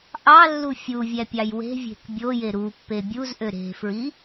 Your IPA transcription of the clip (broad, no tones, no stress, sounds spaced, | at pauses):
ʔ ɑ lː u fʲ u vʲ æ pʲ ɑ j w e̤ vʲ e̤ k bʲ o j e ɾ u pː e bʲ u z ʔ ø ɾ e̤ f ɹ i